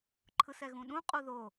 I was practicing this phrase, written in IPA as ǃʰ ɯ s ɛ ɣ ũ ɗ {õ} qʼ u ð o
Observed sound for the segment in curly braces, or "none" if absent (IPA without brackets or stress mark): ũ